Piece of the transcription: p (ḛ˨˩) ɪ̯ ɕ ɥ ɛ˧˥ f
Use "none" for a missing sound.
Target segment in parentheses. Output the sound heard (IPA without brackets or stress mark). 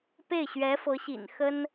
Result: e˥˩